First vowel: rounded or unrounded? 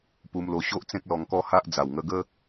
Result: rounded